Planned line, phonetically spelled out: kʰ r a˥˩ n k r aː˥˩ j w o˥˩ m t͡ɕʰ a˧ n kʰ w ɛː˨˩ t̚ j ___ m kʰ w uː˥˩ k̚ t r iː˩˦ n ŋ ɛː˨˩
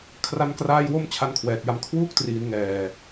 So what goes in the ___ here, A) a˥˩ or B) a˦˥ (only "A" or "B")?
B